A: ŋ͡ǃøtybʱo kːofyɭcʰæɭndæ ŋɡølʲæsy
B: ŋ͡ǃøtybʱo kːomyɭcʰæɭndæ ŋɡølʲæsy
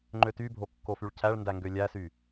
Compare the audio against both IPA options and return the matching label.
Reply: A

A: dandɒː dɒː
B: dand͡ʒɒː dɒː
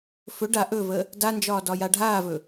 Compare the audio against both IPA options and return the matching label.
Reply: B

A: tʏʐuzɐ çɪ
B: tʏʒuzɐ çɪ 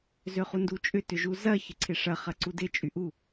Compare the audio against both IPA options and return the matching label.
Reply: B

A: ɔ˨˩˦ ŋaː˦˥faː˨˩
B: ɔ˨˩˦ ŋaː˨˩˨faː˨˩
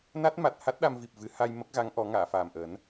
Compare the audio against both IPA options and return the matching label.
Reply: B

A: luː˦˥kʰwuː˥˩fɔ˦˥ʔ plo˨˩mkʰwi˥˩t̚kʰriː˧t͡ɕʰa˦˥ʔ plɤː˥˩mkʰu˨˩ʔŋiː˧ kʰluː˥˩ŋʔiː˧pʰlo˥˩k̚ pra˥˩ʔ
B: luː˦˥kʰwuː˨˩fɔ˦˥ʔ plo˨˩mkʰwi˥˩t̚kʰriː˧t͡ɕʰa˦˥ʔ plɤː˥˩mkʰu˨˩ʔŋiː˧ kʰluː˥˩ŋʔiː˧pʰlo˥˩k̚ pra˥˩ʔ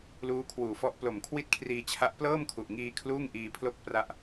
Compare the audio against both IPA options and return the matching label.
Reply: B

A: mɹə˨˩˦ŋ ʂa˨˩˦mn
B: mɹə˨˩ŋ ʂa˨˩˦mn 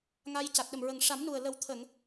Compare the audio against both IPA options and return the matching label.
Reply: B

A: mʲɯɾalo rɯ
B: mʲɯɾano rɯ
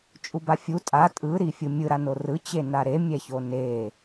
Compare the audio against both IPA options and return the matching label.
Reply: B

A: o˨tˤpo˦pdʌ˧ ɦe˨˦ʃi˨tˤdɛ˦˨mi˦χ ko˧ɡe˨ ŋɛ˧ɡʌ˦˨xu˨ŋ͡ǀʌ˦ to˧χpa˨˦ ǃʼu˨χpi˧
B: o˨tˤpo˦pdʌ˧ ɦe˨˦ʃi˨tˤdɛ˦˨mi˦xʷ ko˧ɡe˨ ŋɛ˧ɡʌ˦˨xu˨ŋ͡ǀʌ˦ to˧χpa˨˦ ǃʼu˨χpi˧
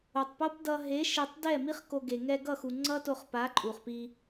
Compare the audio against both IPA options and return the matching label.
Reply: A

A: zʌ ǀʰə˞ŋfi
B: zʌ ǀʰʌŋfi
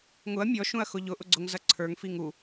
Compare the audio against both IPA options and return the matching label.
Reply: A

